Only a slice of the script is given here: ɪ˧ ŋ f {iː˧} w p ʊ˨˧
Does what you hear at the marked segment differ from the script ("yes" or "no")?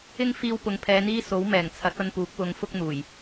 no